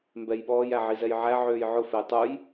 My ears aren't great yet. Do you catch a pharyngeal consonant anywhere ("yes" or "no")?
yes